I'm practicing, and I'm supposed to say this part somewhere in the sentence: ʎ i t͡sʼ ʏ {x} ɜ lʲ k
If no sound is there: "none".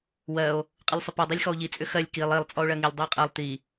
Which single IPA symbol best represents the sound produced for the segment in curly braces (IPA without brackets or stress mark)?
x